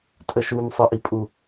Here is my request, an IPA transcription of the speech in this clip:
tʼ ə ʃ u m sˤ ə ʔ i pʼ u

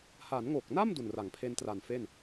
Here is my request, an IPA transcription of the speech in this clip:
h a˩˦ n ŋ o˨˩ k̚ n a˥˩ m d u˨˩ n r a˩˦ ŋ pʰ e˧ n t r a˨˩ n f e˥˩ n

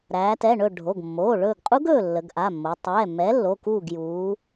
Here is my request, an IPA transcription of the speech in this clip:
ɾ æː˩˧ t ɛ˩˧˩ ɳ ɵ˦˨ ɖʱ o˩˧˩ ɡ mː oː˩˧˩ ɭ ɵː˦˨ ɡ qʼ u˦˥ ɡ ɵː˦˨ lː ə˩˧ ɡ ʔ a˩˧˩ mː o˩˧ tˤ ɛː˩˧˩ mː ɛ˨˥ lː o˩˧˩ k uː˦˨ ɡ j uː˩˧

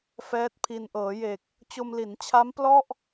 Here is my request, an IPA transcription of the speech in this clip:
f ɛː˦˥ t̚ pʰ i˧ n ʔ ɤː˩˦ j e˨˩ k̚ | t͡ɕ o˧ m l i˩˦ n t͡ɕʰ a˦˥ m p l ɔ˥˩ ʔ

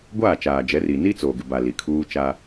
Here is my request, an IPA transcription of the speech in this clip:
ɡʷ aː˦˨ t͡ʃ aː˨ d͡ʒ ɛ˨˦ r i˨ n i˦ t͡s oː˨ ɡ ɪ˨ b a˨ l i˨ kʰ uː˦ t͡ʃ a˦

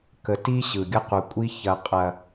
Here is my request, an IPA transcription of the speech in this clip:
k ə˨ t i˦ ɕ ɯ˨ ɡʲ ə˦ q u˨ kʷʼ i˦ ç ɐ˨ qʼ ɐ˨

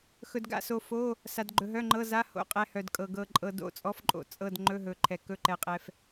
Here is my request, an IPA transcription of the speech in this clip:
x ɵ˩ d ɡ a̰˩˧˩ s o˩ f o˩˧˩ | s a˩ d ɡ͡ǃ ɵ˩ ɦ œ˩˧˩ ŋ͡ǃ ɤ˩˧˩ z a˩˧˩ h o̰˩˧˩ qʼ ɛ˩ h œ˩ d kʼ ɤ˩ ɡ ɤ˩ ǃʼ ɤ˩ d o̰˩˧˩ t͡sʼ ɔ˩˧˩ f ǃʼ o̰˩ t͡sʼ ɤ˩˧˩ d ŋ͡ǃ ɵ˩˧˩ ɦ ɵ˩ ǃʰ ɛ˩ k ɵ˩˧˩ ǃ ɛ˩ qʼ ɛ˩ f

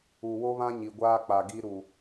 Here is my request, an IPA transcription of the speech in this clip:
u˨ w o˦ β ã˦ ɲ i˨ ɡʷ aː˦ k͡p a˨ ɡ i˦ ɾ u˨

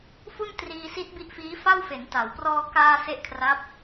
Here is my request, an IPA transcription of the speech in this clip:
f u˥˩ n t r iː˧ s i˦˥ t̚ b i˦˥ ʔ f iː˦˥ f a˥˩ w f e˩˦ n t a˩˦ w p r ɔː˧ k aː˧ s e˦˥ ʔ kʰ r a˦˥ p̚

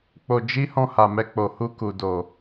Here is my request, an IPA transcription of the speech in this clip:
k͡p o˧ d͡ʒ i˦ h ɔ̃˧ h a˨ m ɛ˧ k͡p o˨ h u˧ k u˨ d o˨

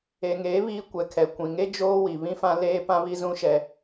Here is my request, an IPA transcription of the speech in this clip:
e˨ ŋ eː˨˦ β iː˦ kʷ ɛ˨ kʰ ɛ˨ kʷ ĩ˨ ŋ e˦ d͡ʒ oː˦ w i˨ β ĩ˦ f ã˦ l eː˦ p ã˦ β i˦ z ũ˦ ʃ ɛ˦

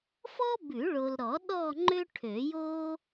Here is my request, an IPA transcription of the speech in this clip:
f ɔ˥ b ʉ˨˩˦ ɭ o˨ l ɾ ɔ˨˩˦ ɗ ɔ˦˨ ŋ͡ǃ ø˥ ʈʰ ø˨˩˦ j o˥

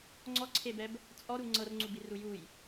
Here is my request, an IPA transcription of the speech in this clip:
ŋ͡ǀ ɔ ǀʰ e b ɛ b | t͡sʼ ɔ ɾ u ŋ͡ǀ ɤ r ŋ͡ǀ u b i r u j u j

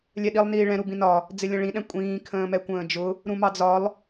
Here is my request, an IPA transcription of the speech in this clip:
lʲ ɛ ɗ i lˠ n iː ɭ ɛ̃ ɾ u b ĩ n ɒ | d͡z ɪ lʲ ə̃ ɭ ĩ ɗ ɛ̃ kʷʼ ĩː kʰ ə̃ː m ɛ kʷ ə̃ː d͡ʒ ʊ | ɾ ũ m ɑ d͡z ɒ lˠ

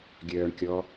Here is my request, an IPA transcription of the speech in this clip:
ɡʲ œː ɳ kʲ ɔ

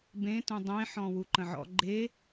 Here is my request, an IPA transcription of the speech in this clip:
b ẽ t ũ dˤ ẽ ħ ɔ̃ w u ǃ ə̃ ʕ ɔ̰ ɡ͡ǃ e

